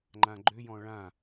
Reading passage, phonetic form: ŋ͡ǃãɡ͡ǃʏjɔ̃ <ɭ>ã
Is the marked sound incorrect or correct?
correct